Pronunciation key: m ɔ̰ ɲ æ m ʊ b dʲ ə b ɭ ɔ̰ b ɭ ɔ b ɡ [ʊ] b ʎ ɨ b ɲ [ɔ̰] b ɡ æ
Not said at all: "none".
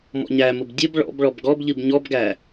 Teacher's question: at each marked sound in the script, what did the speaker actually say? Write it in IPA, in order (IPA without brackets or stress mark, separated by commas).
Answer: ɔ, ɔ